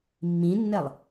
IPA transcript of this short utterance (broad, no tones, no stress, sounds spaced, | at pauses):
mː ĩ nː ɛ lˠ